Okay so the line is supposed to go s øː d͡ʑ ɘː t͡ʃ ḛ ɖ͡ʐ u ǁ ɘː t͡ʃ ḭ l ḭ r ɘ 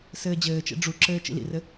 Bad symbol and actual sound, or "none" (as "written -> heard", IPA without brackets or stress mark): øː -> ɘː